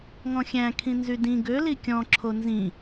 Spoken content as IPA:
ŋɔ̃xʲæ̃ kʰĩnzydĩ ɡø likʲɔ̃ ǁʰonzĩ

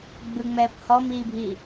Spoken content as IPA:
ɡ͡bɯŋ͡mɛːp hɔmiːbʱiː

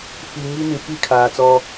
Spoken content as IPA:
fi˨ ŋi˦nĩ˨fi˦˨ kʰaː˨t͡sɔ˦

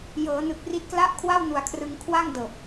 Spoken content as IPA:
jɤː˩˦nɯ˨˩k̚ri˦˥t̚kla˥˩ʔ kʰwa˥˩wnu˨˩a̯kʰrɯ˧ŋkʰwa˥˩ŋ dɤː˨˩p̚

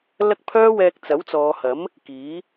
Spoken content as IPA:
lɐ˥k̚pʰœː˥wɛː˧k̚ t͡sɐ˨˥wt͡sɔː˨˧hɐ˨˥m | kiː˨˥

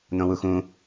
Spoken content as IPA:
n̪õwuxũ

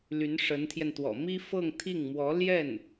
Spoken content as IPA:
ly˧˥nʂə˧˥nt̪ʰjɛ˧nt̪wɔ̰˨˩ mi˥fɤ˥˧ŋ t̪ʰi˥˩ŋ mwɔ˧˥ljɛ˥˩n

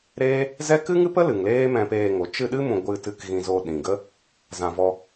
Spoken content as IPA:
ɾeː˦ | zɛ˦ kɨ˦ŋɨ˦pə˦ lɨ˨ŋleː˦ mɛ̃˧peː˧ŋo˨˦ t͡ʃɨ˧ɗɨ˦ mũ˧ ɡʷɨ˧tɨ˧k ɣĩ˧zo˧ ɗĩ˨ ɡə˦ | zã˧vɔ˦

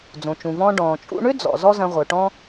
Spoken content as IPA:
d͡zõ˩t͡ʃũ˩vɔ̃ː˧ ɖɔ̃ː˩t͡ʃʼṵ˧ɳʏ˥ d͡zɔ̰˩ zɔ˥zɐ̃˧ ʁʷœ˩ʈɔ̃˥

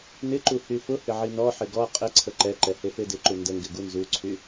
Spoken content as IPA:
nɪǃu hyfʊhɪ ʕinɔħɪ ɡɔ qʼɪ ǀʰəǃɛǃɛ hefedɪǃu ndəŋɡɪ ɡunzuǀʰy

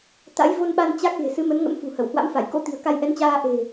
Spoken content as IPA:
t̪a̰˧˥jvo˧nɓa˧n t͡ɕa˦˥k̚ ɣe̤˨˩sɨ˨˦mə˨˦nŋə̰˧˥m fṳ˨˩hə˧˩whwa̰˧˥mfa˧˩j ko̰˧˥t̪i̤˨˩ə̯ ka˧jʔɛ˨˦nt͡ɕaː˧ ʔe̤˨˩

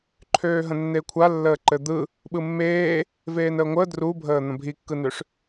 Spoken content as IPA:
ǃʰøːɦə̃nːeːkʷʰa lːəːǃɘd̪ɯ | ɓɯmːeː | veːnəːŋʷəː drubʱəː n̪ə̃bʱikːɯnøʂ

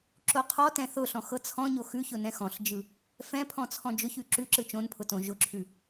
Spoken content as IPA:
ǁoqʰɔtɛ̃ θʊɬɔ̃ xɤt͡sʰɔ̃ɲo xʉçʊ nɛ̃xɔ̃ɬd͡ʒɯ | fɛ̃pʰɔ̃ t͡sʰɔ̃d͡ʒʊçʉ ǁʉǁɯ t͡ʃõnpʰʊ tõ ʒʊǁʰʉ

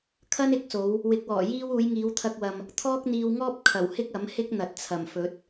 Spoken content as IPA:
kʰɐ˥nɪ˨˥k̚so˨˧w | wɪ˨˥k̚wɔː˨˩jiː˥w uː˨˧jŋiː˨˧wt̪ʰɐ˧k̚wɐ˨m | t̪ʰɔː˥k̚n̪iː˧wŋɔː˥p̚ kʰɐ˨˩w hɪ˥k̚ɐ˨˥m hɪ˥k̚ n̪ɐ˨t̚t͡sʰɐ˨˩mfɵ˨˥t̚

